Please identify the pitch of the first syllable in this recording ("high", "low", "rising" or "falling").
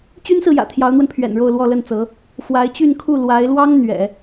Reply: high